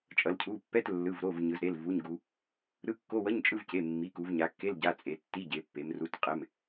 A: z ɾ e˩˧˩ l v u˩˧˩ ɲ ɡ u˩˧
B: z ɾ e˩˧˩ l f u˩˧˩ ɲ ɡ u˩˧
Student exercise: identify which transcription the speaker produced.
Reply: A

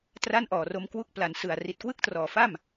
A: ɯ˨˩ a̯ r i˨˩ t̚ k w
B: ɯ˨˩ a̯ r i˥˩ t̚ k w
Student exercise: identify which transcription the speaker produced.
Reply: A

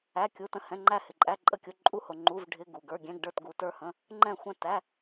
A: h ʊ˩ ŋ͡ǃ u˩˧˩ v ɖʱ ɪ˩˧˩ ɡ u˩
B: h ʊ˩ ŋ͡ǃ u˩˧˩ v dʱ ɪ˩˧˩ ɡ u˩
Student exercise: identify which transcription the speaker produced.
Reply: A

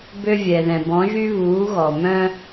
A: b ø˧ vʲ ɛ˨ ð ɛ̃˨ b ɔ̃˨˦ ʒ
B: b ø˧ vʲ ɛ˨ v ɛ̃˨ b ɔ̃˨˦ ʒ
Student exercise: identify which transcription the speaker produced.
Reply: A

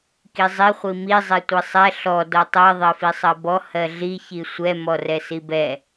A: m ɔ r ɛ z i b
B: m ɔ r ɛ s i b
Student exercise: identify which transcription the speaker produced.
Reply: B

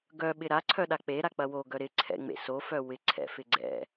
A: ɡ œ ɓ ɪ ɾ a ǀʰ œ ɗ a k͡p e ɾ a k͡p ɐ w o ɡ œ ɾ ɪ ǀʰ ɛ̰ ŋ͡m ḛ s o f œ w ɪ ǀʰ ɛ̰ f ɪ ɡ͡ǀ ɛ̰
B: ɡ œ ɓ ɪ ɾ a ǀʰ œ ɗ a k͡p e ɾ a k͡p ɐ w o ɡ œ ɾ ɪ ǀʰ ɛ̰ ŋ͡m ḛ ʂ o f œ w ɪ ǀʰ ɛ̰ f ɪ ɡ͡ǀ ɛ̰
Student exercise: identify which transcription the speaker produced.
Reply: A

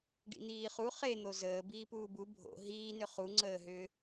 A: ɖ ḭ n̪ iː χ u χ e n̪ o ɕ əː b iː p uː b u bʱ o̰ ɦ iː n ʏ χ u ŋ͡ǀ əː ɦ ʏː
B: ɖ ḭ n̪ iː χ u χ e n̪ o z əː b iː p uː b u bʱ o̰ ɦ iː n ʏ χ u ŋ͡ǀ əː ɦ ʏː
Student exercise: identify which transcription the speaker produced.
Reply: B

